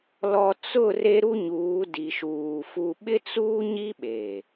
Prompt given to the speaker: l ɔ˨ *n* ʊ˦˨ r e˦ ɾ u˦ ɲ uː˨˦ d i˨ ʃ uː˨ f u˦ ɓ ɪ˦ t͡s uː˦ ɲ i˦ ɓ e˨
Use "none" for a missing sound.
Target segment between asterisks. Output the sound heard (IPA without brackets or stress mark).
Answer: t͡s